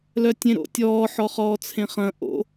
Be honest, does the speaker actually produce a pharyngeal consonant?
yes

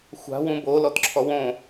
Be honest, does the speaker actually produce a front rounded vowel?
no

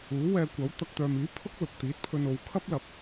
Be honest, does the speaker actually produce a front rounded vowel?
yes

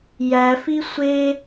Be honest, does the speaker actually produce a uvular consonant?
no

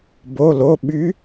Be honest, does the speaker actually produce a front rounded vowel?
yes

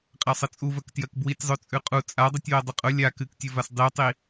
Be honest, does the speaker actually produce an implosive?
no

